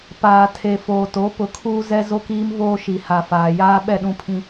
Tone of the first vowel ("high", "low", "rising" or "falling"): low